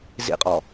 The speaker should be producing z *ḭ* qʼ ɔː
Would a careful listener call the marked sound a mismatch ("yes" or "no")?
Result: no